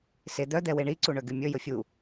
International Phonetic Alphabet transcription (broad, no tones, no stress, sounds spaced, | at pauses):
s e d̪ œ d̪ ɛ w e ɳ i ǀ u ɳ œ ɡ y mʲ ɵ j ɵ fʲ u